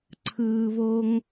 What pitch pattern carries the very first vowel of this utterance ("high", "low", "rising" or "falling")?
low